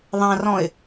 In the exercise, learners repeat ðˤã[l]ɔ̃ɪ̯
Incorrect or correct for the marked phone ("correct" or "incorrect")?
incorrect